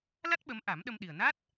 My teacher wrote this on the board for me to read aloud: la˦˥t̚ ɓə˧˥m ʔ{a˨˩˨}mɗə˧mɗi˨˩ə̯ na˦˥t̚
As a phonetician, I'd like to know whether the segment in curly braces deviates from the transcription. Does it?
yes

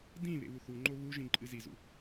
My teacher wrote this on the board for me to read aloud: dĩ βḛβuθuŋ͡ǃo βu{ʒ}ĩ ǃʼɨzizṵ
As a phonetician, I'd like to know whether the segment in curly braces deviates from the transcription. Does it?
no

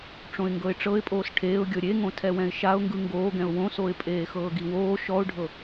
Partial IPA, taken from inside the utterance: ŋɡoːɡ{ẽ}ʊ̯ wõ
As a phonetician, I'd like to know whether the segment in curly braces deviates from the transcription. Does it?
yes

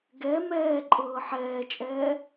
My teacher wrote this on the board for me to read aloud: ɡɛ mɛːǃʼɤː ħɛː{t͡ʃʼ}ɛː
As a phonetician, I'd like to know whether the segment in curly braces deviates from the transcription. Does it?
no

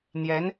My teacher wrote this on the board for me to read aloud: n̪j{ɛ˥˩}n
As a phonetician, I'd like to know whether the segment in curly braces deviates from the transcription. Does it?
yes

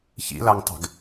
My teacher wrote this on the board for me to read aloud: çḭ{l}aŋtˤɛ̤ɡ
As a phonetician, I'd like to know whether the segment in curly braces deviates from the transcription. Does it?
no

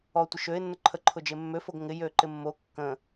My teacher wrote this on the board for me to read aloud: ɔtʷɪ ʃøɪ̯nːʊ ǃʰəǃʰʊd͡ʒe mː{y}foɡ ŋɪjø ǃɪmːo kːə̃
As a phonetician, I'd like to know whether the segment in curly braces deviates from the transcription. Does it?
yes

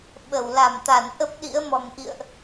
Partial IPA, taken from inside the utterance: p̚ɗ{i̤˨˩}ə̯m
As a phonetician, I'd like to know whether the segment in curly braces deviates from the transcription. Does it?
yes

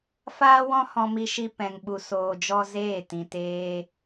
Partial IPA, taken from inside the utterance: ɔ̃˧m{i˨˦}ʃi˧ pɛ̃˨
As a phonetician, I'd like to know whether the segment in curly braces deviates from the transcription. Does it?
yes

